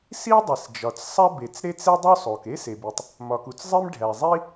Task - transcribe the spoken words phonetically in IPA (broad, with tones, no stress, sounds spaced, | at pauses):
s i˥ dˤ i˩ s d͡ʒ ɒ˩ t͡s sˤ æ˥ b e˩ t͡s ɾ e˥ t͡s e˥ dˤ u˥ sˤ o˩ k e˥ s e˩ b i˩ tˤ | m ɒ˩ k u˩ t͡s zˤ i˥ m ɖʱ æ˩ zˤ i˥